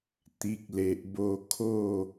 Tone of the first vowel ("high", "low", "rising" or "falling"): low